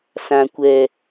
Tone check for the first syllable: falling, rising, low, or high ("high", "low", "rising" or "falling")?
low